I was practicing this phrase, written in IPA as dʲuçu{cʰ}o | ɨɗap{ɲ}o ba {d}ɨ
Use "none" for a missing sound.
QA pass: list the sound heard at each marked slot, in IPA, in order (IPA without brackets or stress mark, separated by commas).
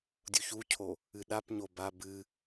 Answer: cʰ, ɲ, b